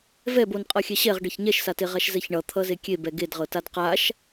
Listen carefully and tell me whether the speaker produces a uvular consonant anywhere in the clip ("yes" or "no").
yes